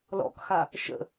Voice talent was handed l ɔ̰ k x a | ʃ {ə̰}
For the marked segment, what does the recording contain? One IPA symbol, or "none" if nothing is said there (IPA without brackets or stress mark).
ə̰